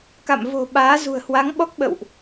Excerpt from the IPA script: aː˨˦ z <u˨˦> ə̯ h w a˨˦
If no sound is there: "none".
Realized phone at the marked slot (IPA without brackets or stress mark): ṳ˨˩